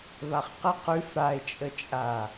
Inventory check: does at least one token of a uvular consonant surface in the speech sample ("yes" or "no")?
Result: yes